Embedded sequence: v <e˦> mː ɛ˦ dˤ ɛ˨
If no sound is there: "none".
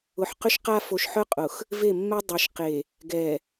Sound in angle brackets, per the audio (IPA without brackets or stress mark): e˦˨